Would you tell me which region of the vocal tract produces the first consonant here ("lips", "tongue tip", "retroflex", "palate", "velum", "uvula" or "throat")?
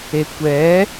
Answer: velum